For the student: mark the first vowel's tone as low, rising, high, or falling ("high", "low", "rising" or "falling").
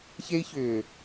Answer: high